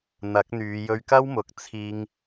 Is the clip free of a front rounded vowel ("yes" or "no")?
no